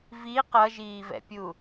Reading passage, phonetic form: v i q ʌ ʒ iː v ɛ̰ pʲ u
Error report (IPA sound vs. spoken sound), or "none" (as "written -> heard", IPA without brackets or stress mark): none